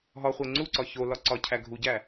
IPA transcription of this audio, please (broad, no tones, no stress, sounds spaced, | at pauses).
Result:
ɦ ɒ χʷ e ŋ͡ǀ u ǀ ɒ ç o l ɒ ǀ ɒ cʰ æ ɡʱ u ɟ æ